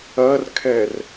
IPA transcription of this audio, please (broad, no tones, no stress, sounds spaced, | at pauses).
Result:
ɐ r kʰ ɛ r